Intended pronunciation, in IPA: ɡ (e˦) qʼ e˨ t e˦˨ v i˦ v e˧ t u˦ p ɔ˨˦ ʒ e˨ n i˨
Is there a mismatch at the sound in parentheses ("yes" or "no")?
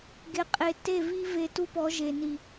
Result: yes